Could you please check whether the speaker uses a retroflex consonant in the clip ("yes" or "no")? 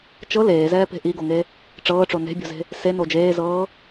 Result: yes